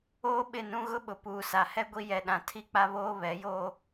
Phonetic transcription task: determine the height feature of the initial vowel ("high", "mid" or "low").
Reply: mid